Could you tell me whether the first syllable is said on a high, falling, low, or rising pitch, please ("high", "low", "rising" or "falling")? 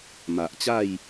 low